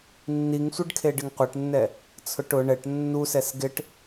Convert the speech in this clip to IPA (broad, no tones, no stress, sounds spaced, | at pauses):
nː i ŋ sʷ ɪ ɖ kʰ e ɖ ɪ ŋ qʷ ɛ ʈ nː ɛ | t͡sʰ ʊ ʈ ʊ ɳ ɛ ʈ nː u s ɛ s ɡ ɪ ʈ